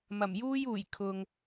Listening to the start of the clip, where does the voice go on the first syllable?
low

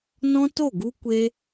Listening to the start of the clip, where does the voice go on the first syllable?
high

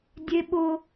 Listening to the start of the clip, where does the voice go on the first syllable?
high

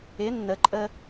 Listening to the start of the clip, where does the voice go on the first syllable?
rising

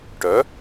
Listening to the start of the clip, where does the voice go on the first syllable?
rising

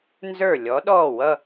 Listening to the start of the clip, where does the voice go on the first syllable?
falling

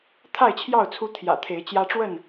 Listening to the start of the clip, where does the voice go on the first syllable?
falling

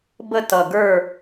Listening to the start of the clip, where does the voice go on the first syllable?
falling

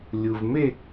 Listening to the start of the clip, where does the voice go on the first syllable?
low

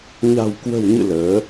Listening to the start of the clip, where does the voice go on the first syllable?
low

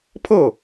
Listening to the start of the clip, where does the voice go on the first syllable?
falling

